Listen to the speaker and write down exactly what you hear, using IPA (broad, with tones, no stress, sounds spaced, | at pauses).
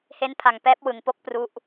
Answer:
h e˦˥ n pʰ a˨˩ ŋ p ɛː˦˥ p̚ w ɯ˩˦ ŋ p o˦˥ k̚ p r u˦˥ ʔ